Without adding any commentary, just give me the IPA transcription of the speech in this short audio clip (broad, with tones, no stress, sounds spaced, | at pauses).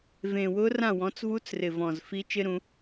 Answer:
v ẽ˨˩ w ʊ˦˥ r ã˥˨ w ɔ̃˨˥ t͡s v u˦˥ t͡s r ɪ˨˩ v ɔ̃˨˩ z f i˦˥ t͡ʃ ɪ˦˥ ɾ ũ˩˧